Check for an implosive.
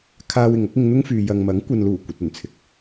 absent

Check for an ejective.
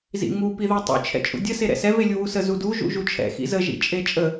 present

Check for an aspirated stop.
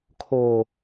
present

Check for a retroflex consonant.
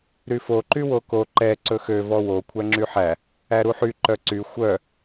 absent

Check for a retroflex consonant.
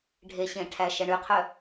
present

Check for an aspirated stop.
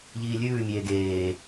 absent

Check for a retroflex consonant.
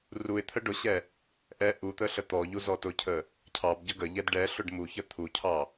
present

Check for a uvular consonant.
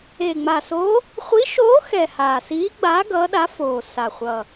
present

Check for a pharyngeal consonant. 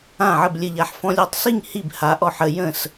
present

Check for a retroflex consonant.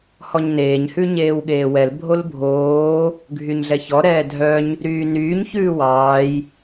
absent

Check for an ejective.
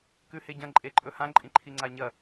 present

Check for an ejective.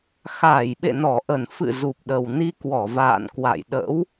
absent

